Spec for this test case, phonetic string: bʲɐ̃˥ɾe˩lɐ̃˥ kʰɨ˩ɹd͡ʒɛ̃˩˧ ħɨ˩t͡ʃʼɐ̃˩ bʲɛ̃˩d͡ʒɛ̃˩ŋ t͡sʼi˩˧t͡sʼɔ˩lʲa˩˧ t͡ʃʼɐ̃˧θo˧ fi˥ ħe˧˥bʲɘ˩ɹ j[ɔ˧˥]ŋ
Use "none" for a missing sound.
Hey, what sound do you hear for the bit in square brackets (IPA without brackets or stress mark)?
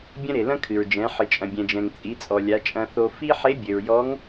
ɔ˧˥